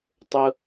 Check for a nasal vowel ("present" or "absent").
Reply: absent